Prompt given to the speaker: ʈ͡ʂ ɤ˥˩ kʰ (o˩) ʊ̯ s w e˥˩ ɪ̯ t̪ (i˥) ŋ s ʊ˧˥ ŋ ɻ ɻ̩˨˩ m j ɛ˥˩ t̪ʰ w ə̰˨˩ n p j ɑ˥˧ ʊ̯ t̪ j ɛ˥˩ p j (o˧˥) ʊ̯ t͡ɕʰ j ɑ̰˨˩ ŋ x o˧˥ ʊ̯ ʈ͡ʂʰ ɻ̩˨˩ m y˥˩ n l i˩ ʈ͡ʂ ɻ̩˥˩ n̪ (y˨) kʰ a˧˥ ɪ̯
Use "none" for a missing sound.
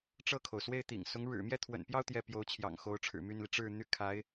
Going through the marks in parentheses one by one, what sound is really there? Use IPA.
o˩, ḭ˨˩, o˧˥, y˥

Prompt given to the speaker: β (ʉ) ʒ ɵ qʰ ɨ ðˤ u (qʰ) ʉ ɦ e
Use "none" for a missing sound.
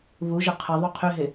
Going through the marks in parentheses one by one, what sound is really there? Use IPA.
u, qʰ

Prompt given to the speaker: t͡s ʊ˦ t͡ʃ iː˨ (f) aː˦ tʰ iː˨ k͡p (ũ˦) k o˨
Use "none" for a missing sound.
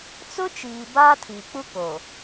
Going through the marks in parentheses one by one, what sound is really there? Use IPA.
b, u˦

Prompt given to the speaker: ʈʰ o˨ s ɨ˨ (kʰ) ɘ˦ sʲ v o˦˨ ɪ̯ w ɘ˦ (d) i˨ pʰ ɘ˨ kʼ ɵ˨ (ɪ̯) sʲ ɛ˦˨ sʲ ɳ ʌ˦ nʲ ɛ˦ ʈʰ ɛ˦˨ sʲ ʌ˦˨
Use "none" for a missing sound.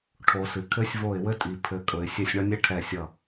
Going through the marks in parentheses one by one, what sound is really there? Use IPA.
kʰ, tʼ, ɪ̯

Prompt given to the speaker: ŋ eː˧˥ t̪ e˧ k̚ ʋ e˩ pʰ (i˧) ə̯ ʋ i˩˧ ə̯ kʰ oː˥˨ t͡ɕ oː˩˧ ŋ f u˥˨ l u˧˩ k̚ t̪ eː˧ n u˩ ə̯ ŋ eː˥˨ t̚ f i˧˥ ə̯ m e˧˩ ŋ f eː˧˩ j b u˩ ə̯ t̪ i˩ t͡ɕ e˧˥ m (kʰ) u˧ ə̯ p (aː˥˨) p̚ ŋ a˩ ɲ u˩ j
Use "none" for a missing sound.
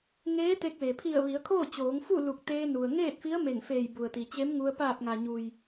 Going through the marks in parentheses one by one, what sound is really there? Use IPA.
i˧˩, ŋ, aː˧˩

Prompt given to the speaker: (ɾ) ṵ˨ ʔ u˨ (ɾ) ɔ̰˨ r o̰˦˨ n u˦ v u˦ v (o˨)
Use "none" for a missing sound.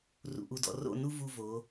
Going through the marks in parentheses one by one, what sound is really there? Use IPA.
r, d, o˨˦

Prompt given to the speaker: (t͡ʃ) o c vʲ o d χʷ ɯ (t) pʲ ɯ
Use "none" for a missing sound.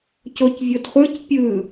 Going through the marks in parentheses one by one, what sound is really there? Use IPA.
c, c

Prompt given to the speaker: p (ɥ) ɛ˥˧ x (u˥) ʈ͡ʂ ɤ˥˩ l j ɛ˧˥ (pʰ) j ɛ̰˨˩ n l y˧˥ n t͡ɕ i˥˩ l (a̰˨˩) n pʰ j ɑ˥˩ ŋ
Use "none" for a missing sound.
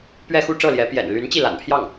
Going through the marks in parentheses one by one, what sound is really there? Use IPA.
ɥ, u˥˧, p, a̰˨˩

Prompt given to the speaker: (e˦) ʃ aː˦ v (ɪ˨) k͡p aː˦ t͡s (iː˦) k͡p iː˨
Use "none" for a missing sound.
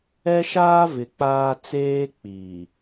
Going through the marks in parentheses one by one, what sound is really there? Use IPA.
ɛ˦, ɪ˨, eː˦

